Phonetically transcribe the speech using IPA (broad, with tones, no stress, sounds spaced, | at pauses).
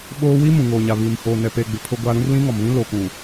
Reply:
ɓ oː˦ w i˦ m ũ˨ ŋ oː˨ ɲ a˨ β i˨ m h oː˨ n ɛ˨ p eː˨ ɡ͡b ɪ˨ pʰ ʊ˦ ɡʷ a˦ ɾ ũ˦ r l ĩ˦ ŋ ɔ˨ m β ĩ˦ l o˨ k ũ˨